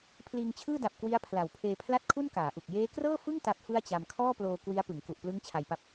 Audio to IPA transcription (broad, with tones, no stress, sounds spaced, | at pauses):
pʰ l iː˧ ŋ t͡ɕʰ ɯː˥˩ d a˨˩ p̚ k w i˦˥ a̯ pʰ l a˨˩ w pʰ eː˧ pʰ l a˥˩ t̚ kʰ u˥˩ n k aː˩˦ ʔ u˨˩ k̚ j eː˦˥ k r ɤː˥˩ f ɯ˥˩ ŋ t a˦˥ p̚ f ɯ˥˩ a̯ t͡ɕ a˧ m kʰ ɔː˥˩ p l oː˧ k w i˦˥ a̯ p ɯ˩˦ ŋ k u˨˩ ʔ p l ɯ˦˥ ŋ t͡ɕʰ a˧ j p a˦˥ p̚